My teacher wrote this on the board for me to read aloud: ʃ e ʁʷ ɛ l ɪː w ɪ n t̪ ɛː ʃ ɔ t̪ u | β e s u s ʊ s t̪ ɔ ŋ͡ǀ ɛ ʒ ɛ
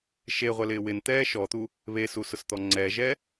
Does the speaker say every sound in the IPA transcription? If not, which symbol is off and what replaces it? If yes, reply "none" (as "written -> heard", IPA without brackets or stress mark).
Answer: none